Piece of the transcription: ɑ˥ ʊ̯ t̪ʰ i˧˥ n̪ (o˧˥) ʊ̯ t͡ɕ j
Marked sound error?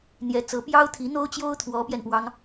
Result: yes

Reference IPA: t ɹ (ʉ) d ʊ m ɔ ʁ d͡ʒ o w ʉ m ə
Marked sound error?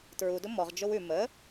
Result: yes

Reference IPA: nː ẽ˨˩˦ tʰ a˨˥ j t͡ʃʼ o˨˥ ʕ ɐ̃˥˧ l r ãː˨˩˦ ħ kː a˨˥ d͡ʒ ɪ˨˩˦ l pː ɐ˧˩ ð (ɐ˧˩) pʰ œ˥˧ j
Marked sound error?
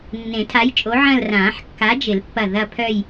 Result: yes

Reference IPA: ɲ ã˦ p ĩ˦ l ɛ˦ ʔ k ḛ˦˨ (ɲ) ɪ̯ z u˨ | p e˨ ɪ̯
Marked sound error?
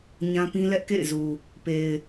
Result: yes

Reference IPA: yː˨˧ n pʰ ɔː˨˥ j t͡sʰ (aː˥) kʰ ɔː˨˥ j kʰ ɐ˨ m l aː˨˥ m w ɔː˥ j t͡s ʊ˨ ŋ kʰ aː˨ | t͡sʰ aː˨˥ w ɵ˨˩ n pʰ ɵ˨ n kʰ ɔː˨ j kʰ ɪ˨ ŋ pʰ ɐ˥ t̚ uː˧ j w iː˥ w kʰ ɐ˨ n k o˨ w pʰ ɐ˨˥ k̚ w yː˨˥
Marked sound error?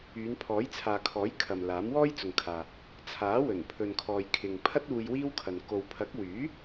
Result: yes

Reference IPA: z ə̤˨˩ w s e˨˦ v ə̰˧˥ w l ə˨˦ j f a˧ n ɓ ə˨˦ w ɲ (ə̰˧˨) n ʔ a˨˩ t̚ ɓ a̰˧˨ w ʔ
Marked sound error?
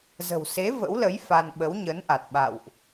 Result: yes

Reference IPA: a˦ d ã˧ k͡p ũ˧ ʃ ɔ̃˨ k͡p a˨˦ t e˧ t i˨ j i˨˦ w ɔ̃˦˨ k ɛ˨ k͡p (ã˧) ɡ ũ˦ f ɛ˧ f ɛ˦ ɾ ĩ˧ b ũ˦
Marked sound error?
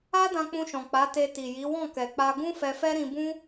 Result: yes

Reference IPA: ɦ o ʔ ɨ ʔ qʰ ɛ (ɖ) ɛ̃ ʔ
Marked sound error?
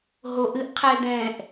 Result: yes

